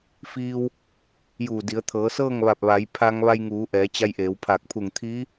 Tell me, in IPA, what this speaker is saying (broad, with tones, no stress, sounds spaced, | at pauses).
f iː˧ w | j uː˧˩ d i˩˧ ə̯ t̪ʰ ɤː˩˧ s ɤː˥˨ ŋ ʋ a˧˩ p̚ ʋ a˩˧ j pʰ a˧ ŋ ʋ a˧ j ŋ uː˩˧ ʔ ɛː˩˧ t͡ɕ a˧ j ʔ eː˩˧ w pʰ a˧˩ k̚ pʰ u˧˩ ŋ t̪ʰ iː˧˥